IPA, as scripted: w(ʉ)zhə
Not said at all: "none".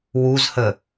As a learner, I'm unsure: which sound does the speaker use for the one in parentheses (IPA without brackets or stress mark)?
u